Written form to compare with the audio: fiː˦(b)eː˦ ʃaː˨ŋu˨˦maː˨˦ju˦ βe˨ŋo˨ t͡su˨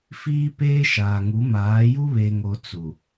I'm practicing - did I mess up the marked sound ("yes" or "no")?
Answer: yes